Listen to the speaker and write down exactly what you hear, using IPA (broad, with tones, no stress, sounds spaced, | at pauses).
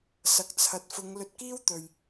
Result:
s ɐ˨ k̚ t͡sʰ ɐ˨ t̚ f ʊ˨˧ ŋ l ɵ˧ t̚ k iː˥ w t̪ ɵ˨ ɥ